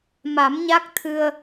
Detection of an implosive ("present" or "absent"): absent